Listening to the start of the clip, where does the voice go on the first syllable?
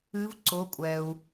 rising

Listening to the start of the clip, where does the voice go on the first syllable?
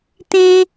high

